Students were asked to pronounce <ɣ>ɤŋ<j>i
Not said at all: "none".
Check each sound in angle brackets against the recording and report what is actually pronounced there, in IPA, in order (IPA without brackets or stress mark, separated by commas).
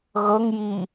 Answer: ɣ, j